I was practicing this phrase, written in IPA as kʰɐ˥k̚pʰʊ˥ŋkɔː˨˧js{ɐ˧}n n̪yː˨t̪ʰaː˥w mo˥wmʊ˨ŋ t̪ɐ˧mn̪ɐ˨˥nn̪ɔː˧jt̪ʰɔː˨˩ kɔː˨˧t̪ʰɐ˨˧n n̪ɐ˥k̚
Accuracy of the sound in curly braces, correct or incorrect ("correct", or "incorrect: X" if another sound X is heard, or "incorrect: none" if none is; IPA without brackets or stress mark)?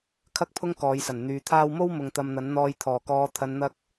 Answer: incorrect: ɐ˨˩